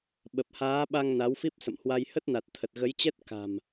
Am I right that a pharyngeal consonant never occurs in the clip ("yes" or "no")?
yes